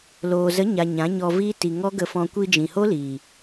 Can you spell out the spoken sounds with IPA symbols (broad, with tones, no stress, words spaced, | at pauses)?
loː˨zə˨˦ɲa˨ ɲã˨˦ɲɔ˧viː˦ ti˨ ŋɔ˦ɡə˧fɔ̃˧ kʷi˧d͡ʒĩ˨ho˦ liː˨